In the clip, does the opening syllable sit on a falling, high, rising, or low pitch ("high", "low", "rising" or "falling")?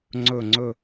falling